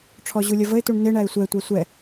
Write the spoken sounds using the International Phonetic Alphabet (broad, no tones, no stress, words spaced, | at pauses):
ʈ͡ʂʰɔʑulʲʌvəɪ̯ tuɳnɪ ɳæɪ̯sʷɛ tʷæsʷɛ